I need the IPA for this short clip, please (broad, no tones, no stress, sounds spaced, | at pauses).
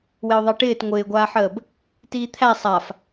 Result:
w ɪ ʊ̯ ðˤ e ʈ ɪː t ŋʷ ɪː ɡʷ aː ħ əː b | t iː t̪ʰ æ sˤ a f